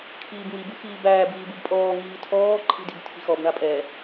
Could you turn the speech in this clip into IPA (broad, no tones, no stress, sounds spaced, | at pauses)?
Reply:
kʰ iː b ŋ i b ɯ x iː b æː b iː b ɯ b pʼ ɔː ŋ iː tʰ ɔː ǃʰ i̤ d i̤ b tʰ i̤ x ɔ b ɳ a pʼ ɛ